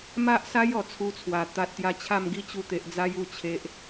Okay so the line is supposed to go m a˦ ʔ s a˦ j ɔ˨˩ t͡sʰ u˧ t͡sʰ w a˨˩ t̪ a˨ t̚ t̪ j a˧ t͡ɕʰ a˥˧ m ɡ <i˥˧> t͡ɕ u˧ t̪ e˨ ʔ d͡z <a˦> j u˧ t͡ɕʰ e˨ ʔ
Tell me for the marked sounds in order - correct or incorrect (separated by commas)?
correct, correct